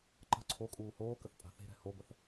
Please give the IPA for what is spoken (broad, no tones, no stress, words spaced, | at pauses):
ǃə̤ ǀʰokʼuː hoːkəθ pʼa̤θe̤ɾɛ̤ hobəθ